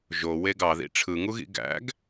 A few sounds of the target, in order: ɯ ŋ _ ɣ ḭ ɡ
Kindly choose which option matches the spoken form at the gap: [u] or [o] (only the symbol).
u